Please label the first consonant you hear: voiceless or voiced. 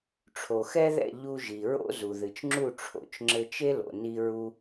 voiceless